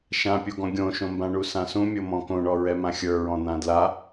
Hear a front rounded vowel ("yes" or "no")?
no